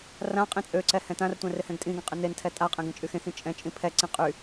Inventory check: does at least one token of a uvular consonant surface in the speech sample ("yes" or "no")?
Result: yes